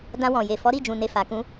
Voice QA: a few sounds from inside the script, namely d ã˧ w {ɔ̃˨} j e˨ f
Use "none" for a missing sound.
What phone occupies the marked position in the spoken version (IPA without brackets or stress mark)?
ɔ̃˨